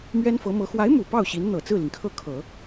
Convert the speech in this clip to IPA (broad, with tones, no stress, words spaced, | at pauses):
mɥɛ˥nfɤ˧˥mɤ˧˥ xwa˧˥ɪ̯mu˨˩ pɑ˥˩ʊ̯ɕi˧˥nn̪ɤ˨˩ t͡sɹ̩˥˩li˩ŋkʰɤ˥˩kʰɤ˨˩˦